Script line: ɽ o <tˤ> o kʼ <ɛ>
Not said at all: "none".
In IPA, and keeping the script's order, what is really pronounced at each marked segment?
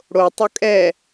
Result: tˤ, ɛ

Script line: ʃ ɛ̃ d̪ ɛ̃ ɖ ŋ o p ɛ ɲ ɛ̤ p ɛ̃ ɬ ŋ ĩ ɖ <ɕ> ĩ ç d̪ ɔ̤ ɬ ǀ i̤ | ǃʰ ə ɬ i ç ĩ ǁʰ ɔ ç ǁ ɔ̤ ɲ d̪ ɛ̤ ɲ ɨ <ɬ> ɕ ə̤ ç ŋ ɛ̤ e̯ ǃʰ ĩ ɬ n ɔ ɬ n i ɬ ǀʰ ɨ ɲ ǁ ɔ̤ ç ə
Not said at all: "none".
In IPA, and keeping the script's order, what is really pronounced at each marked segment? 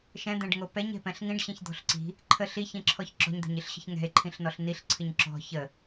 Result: ɕ, ɬ

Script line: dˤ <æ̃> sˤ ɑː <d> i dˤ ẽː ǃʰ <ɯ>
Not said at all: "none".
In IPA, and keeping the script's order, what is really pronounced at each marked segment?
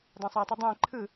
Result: æ̃, tˤ, ɯ

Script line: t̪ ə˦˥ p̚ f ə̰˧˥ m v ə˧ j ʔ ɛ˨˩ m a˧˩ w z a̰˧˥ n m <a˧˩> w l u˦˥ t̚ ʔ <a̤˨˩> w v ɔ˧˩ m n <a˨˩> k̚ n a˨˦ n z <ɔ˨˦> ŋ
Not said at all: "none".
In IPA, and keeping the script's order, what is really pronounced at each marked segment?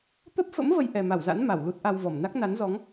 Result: a˧˩, a˧, a˦˥, ɔ˨˦

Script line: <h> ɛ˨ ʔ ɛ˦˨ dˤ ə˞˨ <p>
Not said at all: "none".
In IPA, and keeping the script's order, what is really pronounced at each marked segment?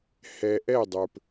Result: h, p

